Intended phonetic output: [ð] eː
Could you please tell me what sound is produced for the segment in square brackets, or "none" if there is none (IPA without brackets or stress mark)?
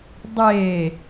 dˤ